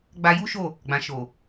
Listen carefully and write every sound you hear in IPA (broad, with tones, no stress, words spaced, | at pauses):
ɡ͡ba˧ju˦ʃo˦˨ | ɡ͡bã˨ʃo˨